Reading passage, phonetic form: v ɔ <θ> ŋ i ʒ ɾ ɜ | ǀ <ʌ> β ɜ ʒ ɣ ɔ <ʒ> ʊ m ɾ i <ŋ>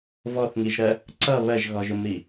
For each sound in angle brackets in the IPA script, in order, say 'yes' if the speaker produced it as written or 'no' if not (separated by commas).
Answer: yes, yes, yes, no